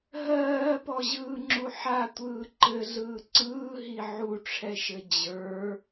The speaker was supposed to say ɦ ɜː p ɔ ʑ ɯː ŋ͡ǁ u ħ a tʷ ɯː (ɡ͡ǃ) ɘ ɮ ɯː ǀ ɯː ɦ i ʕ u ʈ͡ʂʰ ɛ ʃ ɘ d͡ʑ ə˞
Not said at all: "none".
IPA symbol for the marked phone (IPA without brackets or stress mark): ǃ